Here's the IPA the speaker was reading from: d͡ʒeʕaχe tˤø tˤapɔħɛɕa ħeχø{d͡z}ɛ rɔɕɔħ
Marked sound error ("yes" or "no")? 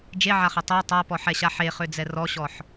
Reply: no